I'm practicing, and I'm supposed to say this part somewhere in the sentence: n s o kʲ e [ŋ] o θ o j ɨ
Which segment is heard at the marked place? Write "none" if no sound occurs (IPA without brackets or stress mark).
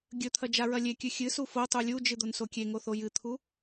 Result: ŋ